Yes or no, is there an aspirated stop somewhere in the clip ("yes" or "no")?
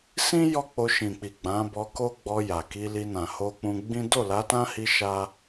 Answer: no